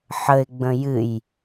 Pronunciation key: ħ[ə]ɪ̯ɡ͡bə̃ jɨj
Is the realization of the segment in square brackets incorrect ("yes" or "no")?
no